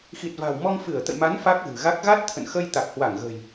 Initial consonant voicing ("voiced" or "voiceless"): voiceless